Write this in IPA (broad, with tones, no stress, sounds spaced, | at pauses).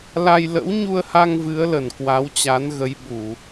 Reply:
l a˧ j l ə̰˧˥ w ɲ u˧ ə̯ h a˧ ŋ v ɨ˨˦ ə̯ l ə˧˩ n k w a˨˦ w t͡ɕ a˨˦ n ɣ ə˨˦ j ɓ u˧˩˨